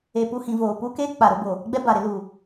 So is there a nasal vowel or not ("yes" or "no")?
yes